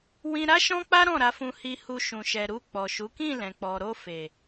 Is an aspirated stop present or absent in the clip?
absent